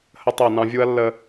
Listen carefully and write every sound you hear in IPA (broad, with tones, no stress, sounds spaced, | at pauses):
h ə˦ tˤ ɜ˦˨ n ɑ̃˦ vʲ u˦ ɐ̯ lː ə˦